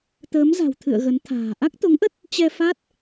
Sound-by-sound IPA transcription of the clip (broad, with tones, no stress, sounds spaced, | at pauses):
t̪ əː˨˦ m z a̤˨˩ w t̪ʰ ɨ̰˧˨ ə̯ ɣ ə˨˦ n t̪ʰ a̤ː˨˩ ʔ a˦˥ k̚ t̪ o˨˦ ŋ ʔ ə˦˥ t̚ | t͡ɕ ɛ˧ f a˦˥ t̚